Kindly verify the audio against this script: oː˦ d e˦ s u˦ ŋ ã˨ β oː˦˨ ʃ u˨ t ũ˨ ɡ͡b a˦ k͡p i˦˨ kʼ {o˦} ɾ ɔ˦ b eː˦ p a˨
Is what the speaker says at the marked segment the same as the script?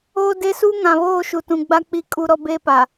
no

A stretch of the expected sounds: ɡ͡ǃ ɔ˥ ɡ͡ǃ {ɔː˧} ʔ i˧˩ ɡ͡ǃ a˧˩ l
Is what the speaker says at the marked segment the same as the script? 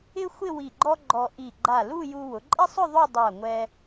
no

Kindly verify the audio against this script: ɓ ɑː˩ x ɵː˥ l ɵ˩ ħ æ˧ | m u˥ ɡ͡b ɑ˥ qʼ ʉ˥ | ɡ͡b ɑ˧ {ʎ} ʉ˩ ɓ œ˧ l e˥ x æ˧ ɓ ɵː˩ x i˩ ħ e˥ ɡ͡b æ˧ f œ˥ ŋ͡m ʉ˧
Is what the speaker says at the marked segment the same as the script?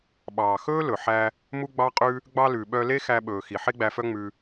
no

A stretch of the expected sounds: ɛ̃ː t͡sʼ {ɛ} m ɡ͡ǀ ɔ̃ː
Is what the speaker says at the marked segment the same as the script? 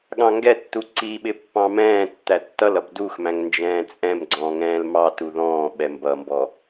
no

